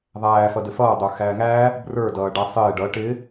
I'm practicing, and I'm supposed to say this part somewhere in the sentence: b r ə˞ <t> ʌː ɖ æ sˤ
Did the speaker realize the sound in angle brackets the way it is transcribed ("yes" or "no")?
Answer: no